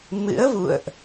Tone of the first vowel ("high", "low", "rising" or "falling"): rising